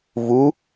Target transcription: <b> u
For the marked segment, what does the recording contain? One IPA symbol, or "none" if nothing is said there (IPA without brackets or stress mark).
v